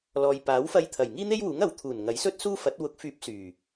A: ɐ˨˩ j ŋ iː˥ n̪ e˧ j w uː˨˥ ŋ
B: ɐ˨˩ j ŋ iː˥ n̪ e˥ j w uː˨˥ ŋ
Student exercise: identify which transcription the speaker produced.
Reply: B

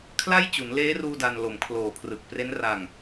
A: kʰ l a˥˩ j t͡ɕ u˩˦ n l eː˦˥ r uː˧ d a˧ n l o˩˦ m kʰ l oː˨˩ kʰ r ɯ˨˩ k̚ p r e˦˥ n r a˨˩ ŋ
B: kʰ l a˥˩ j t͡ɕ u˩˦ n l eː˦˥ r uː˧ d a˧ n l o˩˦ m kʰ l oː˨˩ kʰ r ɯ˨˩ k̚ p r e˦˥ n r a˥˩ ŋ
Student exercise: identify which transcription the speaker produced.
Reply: A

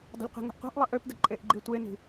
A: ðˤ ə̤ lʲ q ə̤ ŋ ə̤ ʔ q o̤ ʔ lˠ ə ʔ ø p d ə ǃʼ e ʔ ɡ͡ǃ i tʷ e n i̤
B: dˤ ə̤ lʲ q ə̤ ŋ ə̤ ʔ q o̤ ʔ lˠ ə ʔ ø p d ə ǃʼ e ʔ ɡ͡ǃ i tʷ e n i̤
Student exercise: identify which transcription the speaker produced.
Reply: B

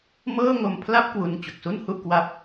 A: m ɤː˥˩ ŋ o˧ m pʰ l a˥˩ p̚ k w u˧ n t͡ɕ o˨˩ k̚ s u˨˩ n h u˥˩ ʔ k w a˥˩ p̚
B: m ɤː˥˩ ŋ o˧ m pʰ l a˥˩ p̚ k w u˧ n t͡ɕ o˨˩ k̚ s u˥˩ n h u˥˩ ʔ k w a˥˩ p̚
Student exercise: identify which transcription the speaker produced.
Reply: B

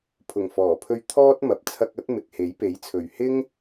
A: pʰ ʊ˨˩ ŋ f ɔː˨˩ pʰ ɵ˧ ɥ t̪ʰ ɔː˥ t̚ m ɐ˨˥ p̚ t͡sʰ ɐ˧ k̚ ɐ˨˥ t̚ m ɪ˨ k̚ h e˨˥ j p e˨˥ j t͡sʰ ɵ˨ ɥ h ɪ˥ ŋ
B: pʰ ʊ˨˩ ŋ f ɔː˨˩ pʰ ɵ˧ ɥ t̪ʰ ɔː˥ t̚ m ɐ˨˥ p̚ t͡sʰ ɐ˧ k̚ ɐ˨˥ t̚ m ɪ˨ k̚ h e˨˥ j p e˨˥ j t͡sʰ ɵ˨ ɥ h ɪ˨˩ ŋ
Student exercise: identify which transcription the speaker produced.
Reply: A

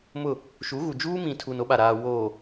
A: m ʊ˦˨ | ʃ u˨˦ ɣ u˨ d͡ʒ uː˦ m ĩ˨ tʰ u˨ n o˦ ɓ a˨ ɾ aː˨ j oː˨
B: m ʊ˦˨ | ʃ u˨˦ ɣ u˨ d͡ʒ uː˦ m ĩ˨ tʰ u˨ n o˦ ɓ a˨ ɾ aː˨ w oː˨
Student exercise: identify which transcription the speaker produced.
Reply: B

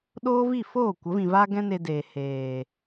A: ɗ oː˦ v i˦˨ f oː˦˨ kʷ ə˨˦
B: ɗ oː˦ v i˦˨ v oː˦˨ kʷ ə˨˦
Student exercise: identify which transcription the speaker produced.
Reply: A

